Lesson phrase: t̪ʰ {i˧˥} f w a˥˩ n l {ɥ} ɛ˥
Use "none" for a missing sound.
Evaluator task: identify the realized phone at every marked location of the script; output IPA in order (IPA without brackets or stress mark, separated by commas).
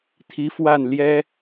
i˧˥, j